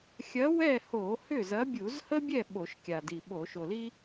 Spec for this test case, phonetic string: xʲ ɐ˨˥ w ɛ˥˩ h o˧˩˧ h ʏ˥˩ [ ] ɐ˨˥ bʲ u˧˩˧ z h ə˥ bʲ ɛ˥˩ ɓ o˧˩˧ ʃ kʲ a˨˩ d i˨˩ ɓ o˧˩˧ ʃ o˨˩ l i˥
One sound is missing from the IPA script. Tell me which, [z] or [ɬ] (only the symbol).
z